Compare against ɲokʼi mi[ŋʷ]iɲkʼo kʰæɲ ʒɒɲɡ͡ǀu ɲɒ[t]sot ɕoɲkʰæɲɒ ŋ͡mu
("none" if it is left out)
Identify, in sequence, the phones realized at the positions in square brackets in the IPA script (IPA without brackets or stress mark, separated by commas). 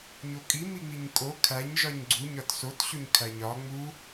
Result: ŋ͡m, t